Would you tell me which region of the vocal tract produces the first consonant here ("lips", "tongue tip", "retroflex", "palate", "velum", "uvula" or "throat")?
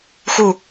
velum